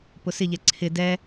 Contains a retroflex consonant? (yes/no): no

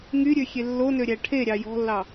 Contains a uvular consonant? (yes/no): no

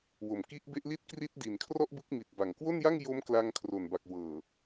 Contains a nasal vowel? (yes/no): no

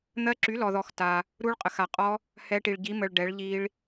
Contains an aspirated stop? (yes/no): no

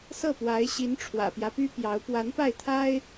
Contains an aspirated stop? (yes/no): yes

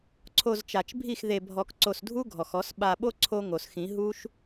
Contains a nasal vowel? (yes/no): yes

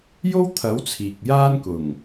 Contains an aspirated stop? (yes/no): yes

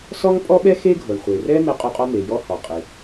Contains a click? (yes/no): no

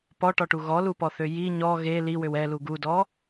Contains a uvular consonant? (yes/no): no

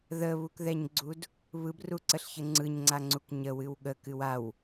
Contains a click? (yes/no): yes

